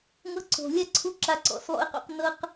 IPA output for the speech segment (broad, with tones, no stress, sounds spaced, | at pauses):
ŋ ɤ˦ ǀ o̤˨ lʲ a˦ ǀʰ u˧ ǁ a˨ ǀ ɔ̰˨ s lˠ o̰˧ ɪ̯ q o̰˧ q n ɤ˧ q